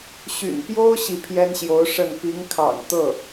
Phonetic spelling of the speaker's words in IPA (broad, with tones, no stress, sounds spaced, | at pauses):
ɕ y̰˨˩ n p j o˥ ʊ̯ ɕ i˥˩ pʰ j ɛ˥ n ɕ j o˧˥ ʊ̯ ʂ ə˥˩ n p i˧˥ ŋ kʰ ɑ̰˨˩ ŋ t̪ ɤ˥˩